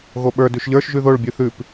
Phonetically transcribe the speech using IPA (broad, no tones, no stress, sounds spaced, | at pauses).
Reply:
ɣ o ɓ ə˞ d ʉ ʃ ʎ ə˞ ʃ ʒ ʉ ð o ɭ bʲ ʉ θ ʉ p